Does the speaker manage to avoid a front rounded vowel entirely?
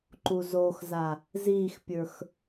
yes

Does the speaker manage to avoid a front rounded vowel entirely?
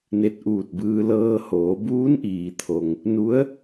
yes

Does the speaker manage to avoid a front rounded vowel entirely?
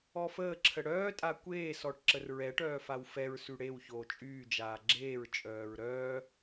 no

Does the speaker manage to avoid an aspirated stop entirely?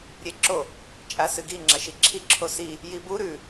no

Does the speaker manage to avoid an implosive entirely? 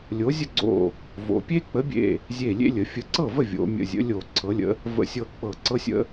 yes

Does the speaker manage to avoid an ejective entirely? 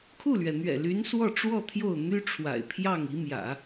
yes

